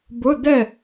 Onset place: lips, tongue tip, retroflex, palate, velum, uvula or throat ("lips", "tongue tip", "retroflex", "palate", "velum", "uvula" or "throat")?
lips